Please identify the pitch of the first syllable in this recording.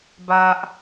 high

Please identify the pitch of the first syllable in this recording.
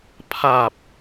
low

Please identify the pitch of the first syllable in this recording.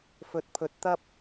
low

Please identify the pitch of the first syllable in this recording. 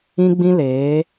high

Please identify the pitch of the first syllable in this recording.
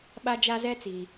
high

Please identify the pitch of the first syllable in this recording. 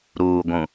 low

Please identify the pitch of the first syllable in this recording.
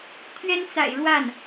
high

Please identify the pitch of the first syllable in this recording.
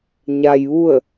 low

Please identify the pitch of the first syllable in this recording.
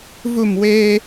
falling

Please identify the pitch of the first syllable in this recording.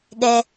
low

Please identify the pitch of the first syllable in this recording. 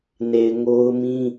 low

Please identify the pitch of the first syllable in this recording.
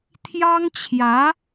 high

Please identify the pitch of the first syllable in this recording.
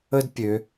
high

